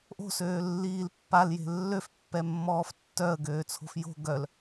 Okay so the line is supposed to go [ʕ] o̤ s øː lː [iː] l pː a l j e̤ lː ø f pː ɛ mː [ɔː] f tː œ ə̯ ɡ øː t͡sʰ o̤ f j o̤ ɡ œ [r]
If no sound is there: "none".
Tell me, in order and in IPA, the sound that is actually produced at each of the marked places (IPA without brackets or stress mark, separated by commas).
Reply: ʔ, iː, ɔː, l